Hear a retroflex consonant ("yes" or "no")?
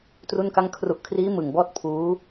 no